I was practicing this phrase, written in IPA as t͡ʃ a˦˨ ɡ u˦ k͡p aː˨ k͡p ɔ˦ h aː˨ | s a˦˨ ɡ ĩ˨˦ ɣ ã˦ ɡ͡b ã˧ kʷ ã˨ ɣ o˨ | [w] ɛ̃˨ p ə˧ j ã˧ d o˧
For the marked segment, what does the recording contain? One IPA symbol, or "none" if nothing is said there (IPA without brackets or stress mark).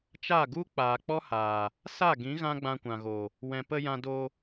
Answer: w